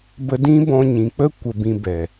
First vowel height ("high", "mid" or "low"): mid